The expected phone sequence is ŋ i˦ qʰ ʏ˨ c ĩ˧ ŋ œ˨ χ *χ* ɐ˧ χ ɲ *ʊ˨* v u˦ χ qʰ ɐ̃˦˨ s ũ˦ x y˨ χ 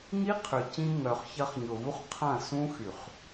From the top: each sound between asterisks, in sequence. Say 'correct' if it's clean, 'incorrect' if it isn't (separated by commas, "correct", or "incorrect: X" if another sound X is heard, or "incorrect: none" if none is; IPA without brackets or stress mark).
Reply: incorrect: ç, correct